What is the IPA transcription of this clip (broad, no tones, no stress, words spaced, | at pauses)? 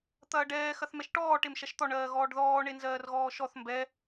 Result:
t̪ɐːɖɛː xɐθmɛʃʈɔː ʈemʃɐʃt̪ɔ ɳɜːɣɔːɖðɔː ɳenzɜːrɣɔːʃɔθ mbɛ